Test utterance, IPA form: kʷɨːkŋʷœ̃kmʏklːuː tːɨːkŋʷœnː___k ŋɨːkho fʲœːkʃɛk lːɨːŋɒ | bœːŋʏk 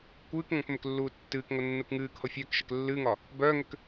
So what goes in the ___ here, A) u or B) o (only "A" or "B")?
A